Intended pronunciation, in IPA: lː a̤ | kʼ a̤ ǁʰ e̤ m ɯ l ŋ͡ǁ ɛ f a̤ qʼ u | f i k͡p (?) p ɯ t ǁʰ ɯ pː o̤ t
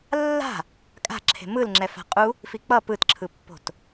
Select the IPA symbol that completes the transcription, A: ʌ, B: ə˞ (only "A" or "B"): A